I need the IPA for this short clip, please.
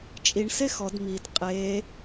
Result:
t͡ʃʼ i ɳ s e x ɔ d m i d qʼ e

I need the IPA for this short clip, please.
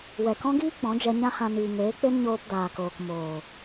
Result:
w ɛ˨ k ɔ̃˦ ɡ iː˦ k͡p ɔ̃˨˦ d͡ʒ ɛ˧ ɲ ã˦ h ã˧ n iː˨ ŋ eː˨˦ k͡p e˦ n ɲ oː˧ p d aː˨ k oː˨ k m oː˨

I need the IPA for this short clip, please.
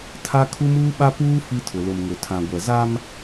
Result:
tʰ a˦ kʰ u˦ m uː˦ ɓ a˦ p uː˦ f i˦ tʰ ʊ˨ l ʊ˨ m ŋ ʊ˨ tʰ ã˨ ɡʷ ɛ˨ z a˦ m

